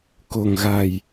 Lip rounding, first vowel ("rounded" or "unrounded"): rounded